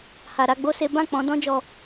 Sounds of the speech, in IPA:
h a˨ ɾ a˨˦ ɡ͡b o˦ s e˦ b ã˦˨ k͡p ɔ̃˨˦ d ɔ̃˦ d͡ʒ ɔ˧

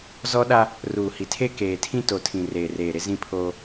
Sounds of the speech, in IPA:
z ɔ˦ ɗ a˦ | r uː˨ h i˨ tʰ e˦ k eː˨ tʰ ĩ˦ t o˨ tʰ ĩ˨ r eː˨ r eː˨ ɾ ɪ˦ z ĩ˦ pʰ oː˦

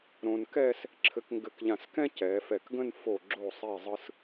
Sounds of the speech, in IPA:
ɾ õ˧ n k ɛ˥˧ s | ǁʰ ɘ˧ k ŋ ɡ ɘ˧ k ʎ ã˧˩ s k ɛ̃˥ c ɛ˩˧ f ɛ˧˩ k ɡ ə̃˥˧ n f o˧˩ ɡ͡ǁ o˧˩ sˤ i˧˩ zˤ ɯ˧ s

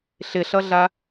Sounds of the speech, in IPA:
ɬ ɪ ɬ ʌ ɮ a

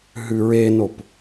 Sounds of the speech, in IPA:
ɦ ʉ ɹ e n o p

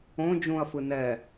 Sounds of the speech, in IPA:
õ d͡ʒ ũ ɐ̯ f ɯ n ɛ

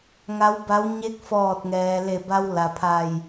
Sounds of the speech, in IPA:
ŋ a˧˥ w b a˧˥ w ɲ e˧˥ k̚ f ɔː˧˩ t̚ ŋ ɛː˩ l e˧˩ b a˧ w l a˩ pʰ a˧˩ j

